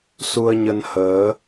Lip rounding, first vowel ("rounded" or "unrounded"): rounded